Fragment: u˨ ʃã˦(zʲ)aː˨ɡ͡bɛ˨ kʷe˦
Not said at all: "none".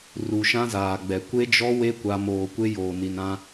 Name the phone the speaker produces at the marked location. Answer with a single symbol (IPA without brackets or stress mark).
z